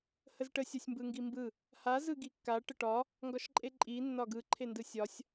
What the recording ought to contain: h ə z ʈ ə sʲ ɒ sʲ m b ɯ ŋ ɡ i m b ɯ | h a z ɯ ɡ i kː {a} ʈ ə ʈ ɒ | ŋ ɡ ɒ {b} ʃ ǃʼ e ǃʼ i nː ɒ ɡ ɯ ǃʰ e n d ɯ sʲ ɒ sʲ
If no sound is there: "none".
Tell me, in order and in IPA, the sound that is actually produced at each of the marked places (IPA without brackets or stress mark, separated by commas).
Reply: a, none